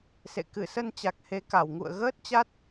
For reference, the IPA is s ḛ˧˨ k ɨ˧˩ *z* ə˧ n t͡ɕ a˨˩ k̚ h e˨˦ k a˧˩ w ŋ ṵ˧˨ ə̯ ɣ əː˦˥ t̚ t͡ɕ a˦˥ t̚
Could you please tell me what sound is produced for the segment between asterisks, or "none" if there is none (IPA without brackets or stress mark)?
s